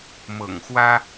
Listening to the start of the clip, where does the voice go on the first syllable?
low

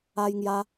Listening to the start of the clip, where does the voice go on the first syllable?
high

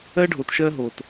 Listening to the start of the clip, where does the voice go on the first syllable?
high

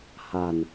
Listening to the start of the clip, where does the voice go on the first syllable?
low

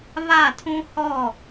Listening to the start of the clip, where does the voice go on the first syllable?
falling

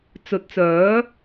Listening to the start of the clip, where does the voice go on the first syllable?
rising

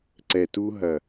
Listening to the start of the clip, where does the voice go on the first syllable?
low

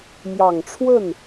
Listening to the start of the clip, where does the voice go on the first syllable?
low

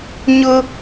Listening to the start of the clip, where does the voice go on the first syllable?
high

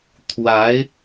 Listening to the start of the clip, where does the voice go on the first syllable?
rising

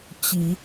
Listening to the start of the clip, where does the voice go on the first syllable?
low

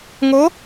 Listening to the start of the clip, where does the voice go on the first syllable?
rising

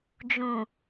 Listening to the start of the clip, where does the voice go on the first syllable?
low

